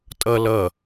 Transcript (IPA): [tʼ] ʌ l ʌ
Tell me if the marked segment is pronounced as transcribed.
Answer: yes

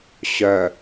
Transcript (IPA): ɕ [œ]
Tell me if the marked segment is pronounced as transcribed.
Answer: yes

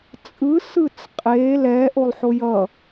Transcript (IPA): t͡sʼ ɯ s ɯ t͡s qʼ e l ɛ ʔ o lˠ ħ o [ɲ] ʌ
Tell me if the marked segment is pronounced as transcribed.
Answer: no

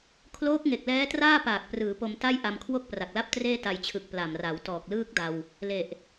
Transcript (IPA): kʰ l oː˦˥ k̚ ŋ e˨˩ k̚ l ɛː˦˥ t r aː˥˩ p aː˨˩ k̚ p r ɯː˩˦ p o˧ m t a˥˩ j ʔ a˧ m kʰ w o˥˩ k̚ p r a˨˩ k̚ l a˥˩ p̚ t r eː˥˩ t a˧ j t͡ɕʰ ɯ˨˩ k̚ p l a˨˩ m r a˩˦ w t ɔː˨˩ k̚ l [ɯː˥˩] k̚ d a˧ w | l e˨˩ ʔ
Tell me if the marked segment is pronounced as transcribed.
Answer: yes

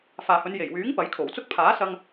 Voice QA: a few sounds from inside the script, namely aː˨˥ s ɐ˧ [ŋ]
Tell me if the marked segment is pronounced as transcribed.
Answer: yes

